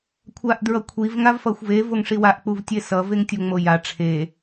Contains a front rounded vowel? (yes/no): no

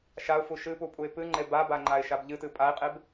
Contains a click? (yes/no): yes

